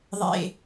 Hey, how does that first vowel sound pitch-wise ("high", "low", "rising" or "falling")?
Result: low